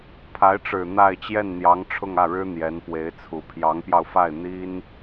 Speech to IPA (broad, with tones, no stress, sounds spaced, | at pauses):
pʰ a˧˥ ɪ̯ ʈ͡ʂ ɻ̩˨˩ n̪ a˥˧ ɪ̯ t͡ɕ j ɛ˥˩ n n̪ j ɑ˧˥ ŋ ʈ͡ʂʰ ʊ˥˧ ŋ ä˥˩ ɻ ɻ̩˥ n̪ j ɛ˧˥ n p w e˧˥ ɪ̯ t͡sʰ u˨˩ pʰ j ɑ˧˥ ŋ p j ɑ˧ ʊ̯ f a˥˩ ɪ̯ n̪ i˥ n